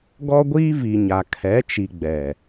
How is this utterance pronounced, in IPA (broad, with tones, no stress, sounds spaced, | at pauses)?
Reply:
ɡ ɔ˦ ɡʷ iː˦ v i˨ ɲ a˨ kʰ ɛ˨˦ t͡ʃ i˨ ɡ͡b ɛ˨